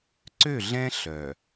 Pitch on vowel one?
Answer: falling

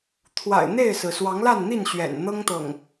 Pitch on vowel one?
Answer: low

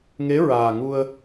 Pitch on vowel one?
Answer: rising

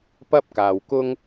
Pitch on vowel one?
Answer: high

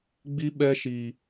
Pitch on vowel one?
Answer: high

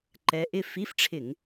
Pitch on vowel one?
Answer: rising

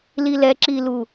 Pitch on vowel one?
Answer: low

